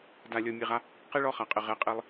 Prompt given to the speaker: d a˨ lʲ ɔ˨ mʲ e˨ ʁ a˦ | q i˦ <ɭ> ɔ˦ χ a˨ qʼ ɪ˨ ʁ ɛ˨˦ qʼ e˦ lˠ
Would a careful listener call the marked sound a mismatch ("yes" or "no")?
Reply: no